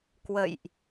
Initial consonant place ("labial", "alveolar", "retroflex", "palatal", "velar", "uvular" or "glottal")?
velar